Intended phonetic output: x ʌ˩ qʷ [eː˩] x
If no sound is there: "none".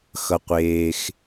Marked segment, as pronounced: eː˩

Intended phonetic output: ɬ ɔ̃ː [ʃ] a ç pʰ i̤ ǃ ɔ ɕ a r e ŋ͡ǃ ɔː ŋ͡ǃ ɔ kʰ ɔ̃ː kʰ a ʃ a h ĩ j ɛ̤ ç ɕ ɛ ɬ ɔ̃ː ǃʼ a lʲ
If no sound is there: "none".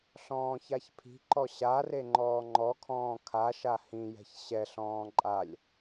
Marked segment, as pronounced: ç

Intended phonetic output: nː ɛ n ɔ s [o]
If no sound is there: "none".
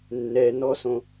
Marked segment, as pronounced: õ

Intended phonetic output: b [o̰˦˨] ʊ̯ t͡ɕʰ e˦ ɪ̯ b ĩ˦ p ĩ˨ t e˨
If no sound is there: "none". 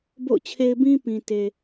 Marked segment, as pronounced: o̰˦˨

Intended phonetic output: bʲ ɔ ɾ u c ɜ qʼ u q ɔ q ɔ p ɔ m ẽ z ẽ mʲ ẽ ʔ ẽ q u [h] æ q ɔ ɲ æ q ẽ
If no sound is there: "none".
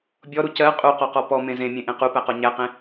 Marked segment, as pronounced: p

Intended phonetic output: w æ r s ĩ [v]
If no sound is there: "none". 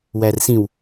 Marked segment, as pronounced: w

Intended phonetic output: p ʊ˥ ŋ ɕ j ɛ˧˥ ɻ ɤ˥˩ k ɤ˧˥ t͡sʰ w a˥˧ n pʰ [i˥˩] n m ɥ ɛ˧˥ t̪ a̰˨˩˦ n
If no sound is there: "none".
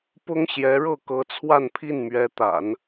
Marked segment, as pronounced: i˥˩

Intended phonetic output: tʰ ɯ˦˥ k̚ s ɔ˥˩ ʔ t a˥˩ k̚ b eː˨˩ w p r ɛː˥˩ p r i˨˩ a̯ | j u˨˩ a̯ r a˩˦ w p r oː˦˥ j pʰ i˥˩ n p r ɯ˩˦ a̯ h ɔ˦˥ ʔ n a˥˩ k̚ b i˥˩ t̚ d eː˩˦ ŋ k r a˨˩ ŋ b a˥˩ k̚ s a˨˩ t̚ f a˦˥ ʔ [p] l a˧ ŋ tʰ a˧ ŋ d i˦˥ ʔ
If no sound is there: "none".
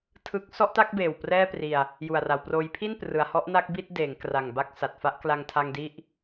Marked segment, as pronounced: k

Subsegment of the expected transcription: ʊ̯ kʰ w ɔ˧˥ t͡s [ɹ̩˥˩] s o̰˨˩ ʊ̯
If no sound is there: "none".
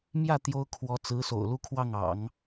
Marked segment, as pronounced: ɹ̩˧˥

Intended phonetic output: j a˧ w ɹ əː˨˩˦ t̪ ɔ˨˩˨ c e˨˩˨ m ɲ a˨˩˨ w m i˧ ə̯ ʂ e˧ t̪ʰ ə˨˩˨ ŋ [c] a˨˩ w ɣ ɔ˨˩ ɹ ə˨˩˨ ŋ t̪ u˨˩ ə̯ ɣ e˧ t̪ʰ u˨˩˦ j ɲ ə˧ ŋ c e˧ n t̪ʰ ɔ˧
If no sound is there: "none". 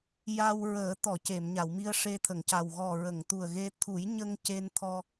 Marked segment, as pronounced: c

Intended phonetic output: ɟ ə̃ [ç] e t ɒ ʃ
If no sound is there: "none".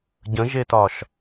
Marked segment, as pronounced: ʒ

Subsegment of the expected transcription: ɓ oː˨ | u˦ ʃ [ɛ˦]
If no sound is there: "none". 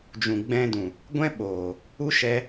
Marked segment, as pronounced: ɛ˧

